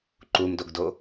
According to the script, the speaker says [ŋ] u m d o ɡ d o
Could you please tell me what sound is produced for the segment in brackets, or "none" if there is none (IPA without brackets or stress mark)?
ǃ